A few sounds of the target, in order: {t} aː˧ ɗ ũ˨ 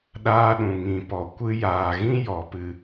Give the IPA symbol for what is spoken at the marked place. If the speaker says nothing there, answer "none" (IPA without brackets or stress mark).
ɗ